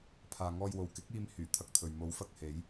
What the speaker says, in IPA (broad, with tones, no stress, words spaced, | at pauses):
pʰaː˨ŋɔː˧jwo˨w kɪ˨˥k̚iː˧m hyː˨˩t̪ʰɐ˧k̚t̪ʰɵ˨ɥ mo˨˧wfɐ˧k̚he˨˧j